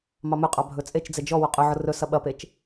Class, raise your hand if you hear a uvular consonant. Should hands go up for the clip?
yes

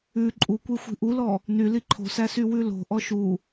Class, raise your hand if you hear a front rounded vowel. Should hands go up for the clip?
yes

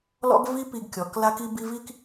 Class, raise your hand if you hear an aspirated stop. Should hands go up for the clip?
no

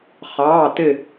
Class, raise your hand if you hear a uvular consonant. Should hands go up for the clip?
yes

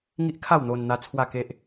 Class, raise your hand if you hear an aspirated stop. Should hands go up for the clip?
yes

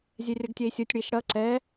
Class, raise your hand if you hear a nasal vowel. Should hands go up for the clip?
no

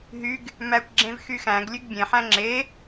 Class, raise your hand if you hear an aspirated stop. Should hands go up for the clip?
no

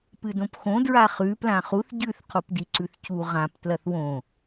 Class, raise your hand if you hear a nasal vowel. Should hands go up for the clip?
yes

